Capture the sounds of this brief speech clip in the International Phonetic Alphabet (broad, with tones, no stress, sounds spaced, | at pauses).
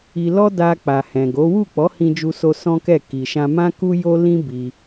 i˧ l ɔ˦ d a˧ k͡p a˨ h ɛ̃˨ ɡ o˨˦ w u˦˨ k͡p ɔ˨˦ h ĩ˦ d͡ʒ u˦ s o˦ s ɔ̃˦ k ɛ˦˨ k i˨ ʃ ã˧ m ã˦ k u˦ j o˦ l ĩ˦ b i˧